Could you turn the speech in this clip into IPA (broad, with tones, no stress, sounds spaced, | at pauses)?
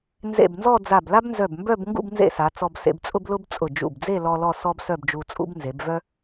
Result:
n z ḛ˧˩ b n z ɔ˥˧ d͡z a˧˩ b l a˥ b n z œ˧˩ b m b œ˥˧ b ŋ ɡ ṵ˥˧ b n z ḛ˥˧ s a˩˧ t͡s ɔ˧ b s ḛ˧ b t͡sʼ ʊ˥ b l ʊ˥ b t͡sʼ ʊ˧˩ d͡ʒ ṵ˧˩ b d͡z e˥˧ l ɔ˧ l ɔ˥˧ s ɔ˥ b s œ˥˧ b d͡ʒ u˧ t͡sʼ ṵ˥ b n z e˩˧ b v œ˥